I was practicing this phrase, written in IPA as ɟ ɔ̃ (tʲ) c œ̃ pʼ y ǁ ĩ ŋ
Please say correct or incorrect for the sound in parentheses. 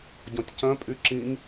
correct